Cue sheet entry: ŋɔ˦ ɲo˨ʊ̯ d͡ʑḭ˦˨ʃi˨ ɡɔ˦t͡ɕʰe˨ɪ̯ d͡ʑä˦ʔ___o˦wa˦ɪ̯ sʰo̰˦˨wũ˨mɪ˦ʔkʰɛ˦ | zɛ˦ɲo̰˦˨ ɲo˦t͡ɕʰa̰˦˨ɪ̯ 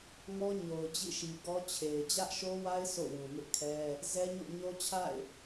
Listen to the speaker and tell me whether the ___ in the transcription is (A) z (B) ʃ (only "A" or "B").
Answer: B